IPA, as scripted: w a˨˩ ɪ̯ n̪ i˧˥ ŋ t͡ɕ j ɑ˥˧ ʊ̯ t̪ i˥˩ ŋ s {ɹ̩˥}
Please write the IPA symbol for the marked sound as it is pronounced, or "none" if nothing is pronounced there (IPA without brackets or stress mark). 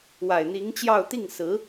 ɹ̩˧˥